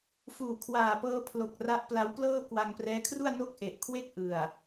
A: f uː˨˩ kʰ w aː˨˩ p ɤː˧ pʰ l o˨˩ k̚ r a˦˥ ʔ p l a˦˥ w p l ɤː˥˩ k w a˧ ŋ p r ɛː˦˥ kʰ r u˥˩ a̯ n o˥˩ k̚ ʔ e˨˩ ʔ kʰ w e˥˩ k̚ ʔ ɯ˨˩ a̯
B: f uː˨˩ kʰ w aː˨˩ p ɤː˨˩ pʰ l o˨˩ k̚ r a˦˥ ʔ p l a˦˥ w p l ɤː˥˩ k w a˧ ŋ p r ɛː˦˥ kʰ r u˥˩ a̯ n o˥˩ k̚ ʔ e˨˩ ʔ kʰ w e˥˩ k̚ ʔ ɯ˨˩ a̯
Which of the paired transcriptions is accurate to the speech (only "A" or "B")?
A